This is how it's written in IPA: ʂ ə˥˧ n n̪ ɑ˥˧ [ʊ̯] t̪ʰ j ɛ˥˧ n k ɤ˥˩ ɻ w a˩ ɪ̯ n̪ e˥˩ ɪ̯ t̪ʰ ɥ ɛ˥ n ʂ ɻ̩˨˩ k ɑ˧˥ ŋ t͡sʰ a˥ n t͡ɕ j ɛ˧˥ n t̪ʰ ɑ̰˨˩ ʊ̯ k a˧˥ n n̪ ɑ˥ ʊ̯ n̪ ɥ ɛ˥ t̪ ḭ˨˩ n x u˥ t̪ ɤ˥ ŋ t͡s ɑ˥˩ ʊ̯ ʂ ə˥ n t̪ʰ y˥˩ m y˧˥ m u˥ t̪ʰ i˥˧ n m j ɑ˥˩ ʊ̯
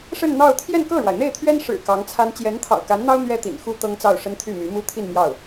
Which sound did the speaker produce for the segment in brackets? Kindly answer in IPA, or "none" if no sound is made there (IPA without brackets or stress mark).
ʊ̯